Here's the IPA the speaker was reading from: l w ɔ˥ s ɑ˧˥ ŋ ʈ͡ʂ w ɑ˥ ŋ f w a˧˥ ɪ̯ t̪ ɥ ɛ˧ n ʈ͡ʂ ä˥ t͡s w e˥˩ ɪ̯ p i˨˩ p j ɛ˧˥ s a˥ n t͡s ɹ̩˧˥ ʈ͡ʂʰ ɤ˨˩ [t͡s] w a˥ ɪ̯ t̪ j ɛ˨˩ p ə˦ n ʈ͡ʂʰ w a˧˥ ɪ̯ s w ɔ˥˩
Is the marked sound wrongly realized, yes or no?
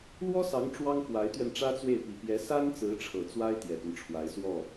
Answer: no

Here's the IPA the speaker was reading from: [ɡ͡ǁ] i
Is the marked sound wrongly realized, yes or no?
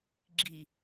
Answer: no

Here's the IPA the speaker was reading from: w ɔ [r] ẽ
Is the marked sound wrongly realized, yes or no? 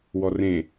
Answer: no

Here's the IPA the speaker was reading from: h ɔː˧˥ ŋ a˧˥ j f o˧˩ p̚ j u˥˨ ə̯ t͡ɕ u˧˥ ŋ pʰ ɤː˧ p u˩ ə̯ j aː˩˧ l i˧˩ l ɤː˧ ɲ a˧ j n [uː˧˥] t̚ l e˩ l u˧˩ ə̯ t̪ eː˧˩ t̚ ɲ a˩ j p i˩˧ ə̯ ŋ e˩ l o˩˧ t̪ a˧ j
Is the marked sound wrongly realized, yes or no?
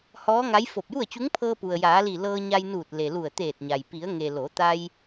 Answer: yes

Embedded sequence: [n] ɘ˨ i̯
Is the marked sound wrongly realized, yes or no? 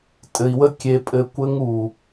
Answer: yes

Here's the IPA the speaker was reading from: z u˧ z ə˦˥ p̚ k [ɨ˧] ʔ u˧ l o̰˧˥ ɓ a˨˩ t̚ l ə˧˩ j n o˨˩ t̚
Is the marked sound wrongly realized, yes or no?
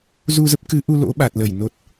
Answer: yes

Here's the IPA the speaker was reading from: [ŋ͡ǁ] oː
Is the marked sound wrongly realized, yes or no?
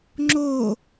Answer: no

